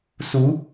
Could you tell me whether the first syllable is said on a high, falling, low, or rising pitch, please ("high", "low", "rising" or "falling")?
rising